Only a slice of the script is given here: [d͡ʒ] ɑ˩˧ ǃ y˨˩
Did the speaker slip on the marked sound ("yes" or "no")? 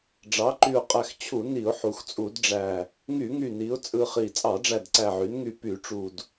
yes